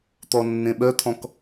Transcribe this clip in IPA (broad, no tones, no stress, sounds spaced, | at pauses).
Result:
t̪ ɔ nː ẽ ɓ œ t̪ʰ ɔ̃ k